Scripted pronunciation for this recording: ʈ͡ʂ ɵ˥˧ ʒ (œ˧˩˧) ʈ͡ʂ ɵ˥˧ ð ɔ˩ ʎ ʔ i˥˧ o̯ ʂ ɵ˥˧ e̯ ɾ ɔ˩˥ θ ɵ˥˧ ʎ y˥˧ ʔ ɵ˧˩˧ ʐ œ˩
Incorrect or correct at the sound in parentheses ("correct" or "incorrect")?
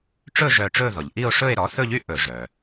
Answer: incorrect